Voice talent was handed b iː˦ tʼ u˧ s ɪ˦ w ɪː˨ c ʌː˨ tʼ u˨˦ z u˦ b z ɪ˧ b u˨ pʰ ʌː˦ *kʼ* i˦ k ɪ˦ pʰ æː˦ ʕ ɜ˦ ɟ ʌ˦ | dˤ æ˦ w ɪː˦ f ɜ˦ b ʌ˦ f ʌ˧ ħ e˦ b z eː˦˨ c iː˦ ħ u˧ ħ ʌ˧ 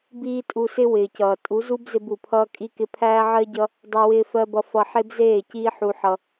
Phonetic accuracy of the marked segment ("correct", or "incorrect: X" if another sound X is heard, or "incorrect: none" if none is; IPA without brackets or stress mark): correct